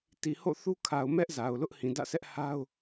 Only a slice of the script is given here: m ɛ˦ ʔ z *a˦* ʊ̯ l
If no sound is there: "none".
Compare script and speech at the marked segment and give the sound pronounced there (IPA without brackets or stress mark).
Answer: a˨